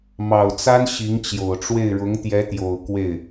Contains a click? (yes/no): no